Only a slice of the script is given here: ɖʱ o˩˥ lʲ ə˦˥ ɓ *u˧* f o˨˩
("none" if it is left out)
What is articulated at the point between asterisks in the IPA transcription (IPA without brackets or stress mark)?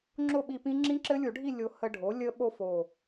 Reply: o˧